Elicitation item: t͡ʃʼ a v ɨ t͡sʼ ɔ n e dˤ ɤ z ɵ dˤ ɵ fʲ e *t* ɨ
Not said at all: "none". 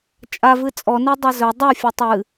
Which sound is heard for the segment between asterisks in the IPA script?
tˤ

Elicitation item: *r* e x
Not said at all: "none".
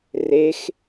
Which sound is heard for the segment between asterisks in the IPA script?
r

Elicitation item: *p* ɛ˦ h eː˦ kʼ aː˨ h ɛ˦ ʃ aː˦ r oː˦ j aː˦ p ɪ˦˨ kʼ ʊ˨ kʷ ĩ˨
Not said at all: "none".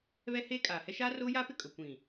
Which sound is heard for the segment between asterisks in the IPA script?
β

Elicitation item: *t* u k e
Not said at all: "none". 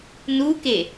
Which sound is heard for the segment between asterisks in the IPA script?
n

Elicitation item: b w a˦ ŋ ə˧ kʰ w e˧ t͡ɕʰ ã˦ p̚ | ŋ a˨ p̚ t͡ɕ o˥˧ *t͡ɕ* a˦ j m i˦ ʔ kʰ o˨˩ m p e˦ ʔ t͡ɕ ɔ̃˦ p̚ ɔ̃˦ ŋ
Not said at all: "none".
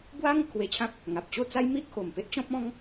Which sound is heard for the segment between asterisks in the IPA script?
t͡s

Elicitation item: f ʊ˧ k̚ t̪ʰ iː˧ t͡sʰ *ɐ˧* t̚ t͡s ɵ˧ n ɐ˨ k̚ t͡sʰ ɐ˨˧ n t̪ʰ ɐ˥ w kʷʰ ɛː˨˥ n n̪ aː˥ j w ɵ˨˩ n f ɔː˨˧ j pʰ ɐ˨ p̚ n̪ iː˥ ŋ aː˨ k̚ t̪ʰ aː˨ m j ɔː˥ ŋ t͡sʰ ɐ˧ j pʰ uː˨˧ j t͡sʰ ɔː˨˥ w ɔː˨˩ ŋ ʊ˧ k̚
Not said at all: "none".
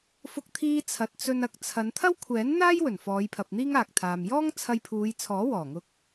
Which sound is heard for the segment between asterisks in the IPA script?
ɐ˨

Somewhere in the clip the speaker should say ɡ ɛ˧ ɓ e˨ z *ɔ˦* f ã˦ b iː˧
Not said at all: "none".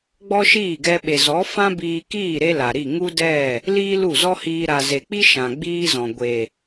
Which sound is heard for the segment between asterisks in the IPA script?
ɔ˨˦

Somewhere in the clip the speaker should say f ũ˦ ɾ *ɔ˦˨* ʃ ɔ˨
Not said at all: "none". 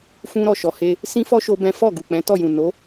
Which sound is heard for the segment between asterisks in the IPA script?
ɔ˦˨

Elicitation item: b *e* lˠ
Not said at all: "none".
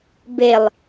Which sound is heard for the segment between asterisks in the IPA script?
e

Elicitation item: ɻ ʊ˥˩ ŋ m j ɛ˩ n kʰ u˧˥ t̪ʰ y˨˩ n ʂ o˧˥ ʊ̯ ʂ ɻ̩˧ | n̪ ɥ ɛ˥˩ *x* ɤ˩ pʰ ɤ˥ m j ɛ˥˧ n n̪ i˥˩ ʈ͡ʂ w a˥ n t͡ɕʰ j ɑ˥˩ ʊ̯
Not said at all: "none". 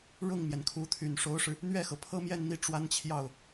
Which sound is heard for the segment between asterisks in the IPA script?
x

